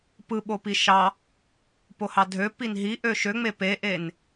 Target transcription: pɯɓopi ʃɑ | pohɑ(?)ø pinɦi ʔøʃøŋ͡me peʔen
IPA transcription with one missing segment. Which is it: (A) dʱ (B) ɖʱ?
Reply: A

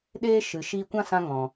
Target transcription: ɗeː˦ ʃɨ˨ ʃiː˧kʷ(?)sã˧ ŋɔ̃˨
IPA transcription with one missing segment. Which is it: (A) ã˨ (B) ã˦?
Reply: B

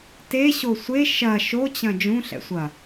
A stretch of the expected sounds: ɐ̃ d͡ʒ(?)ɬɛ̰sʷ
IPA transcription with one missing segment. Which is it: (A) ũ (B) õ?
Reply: A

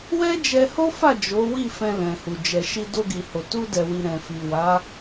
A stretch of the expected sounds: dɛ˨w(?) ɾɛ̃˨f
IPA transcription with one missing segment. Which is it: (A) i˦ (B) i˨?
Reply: B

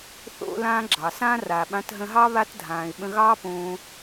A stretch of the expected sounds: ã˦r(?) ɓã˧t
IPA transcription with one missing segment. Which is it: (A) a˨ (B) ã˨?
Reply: A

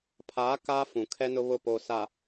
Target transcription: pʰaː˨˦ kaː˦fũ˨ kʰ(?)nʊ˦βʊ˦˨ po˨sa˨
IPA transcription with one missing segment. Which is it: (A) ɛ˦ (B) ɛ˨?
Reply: A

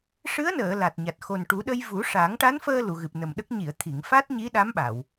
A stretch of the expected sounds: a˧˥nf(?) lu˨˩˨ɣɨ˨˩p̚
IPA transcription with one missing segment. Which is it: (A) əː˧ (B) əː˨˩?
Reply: A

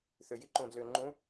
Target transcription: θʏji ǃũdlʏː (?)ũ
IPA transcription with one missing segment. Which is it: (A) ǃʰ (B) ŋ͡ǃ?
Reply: B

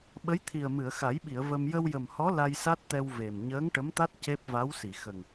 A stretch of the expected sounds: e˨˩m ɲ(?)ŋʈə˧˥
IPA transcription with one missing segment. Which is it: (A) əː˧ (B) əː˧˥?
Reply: B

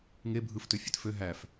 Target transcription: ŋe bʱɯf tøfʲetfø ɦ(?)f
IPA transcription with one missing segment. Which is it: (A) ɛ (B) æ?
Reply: B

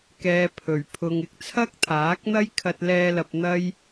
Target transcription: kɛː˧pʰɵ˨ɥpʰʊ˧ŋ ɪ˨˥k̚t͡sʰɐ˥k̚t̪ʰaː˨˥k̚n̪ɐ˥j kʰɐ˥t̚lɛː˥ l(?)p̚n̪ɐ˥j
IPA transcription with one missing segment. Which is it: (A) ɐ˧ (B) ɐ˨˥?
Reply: A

